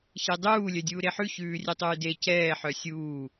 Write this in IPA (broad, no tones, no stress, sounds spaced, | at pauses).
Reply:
ç e dˤ uː lʲ œ dʲ uː ɾ e ħ ʉ ç ʉː rʲ ɛ tˤ ʉː d e c ɛː ħ œ sʲ uː